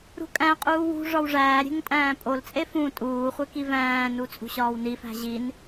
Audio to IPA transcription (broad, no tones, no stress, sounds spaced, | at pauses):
ɾ ṳ kʼ æ̃ qʼ uː w ṳ ʐ ɒ w ʐ æː ɾʲ e̤ ŋ tʼ æ̃ː pʼ o l t͡sʼ e f ũ tʼ uː χʷ e k i v æ̃ː n u t͡sʼ ṳ ɕ ɒː w n i f æ̤ ʑ i n